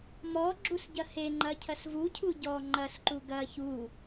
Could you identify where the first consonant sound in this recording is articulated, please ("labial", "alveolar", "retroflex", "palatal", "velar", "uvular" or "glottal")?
labial